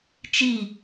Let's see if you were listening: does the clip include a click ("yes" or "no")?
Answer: no